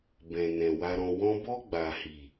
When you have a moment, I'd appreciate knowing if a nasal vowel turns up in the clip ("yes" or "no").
yes